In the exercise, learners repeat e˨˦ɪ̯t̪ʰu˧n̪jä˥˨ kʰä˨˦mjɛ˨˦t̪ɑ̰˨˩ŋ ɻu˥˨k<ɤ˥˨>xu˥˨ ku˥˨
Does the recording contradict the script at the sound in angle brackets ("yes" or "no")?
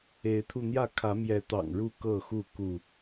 no